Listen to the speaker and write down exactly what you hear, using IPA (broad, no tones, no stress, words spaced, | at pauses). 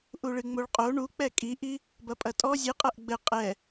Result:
ʔuɭɨŋ͡moɭqʼo ɳuk͡pɛ kʼiʔi | bɐpʼɐtʼɔ zʲɨ qʼɐʔɡ͡bɘ qʼɛ